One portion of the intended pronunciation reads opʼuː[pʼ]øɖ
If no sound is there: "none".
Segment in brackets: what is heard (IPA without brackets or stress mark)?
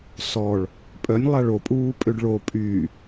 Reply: pʼ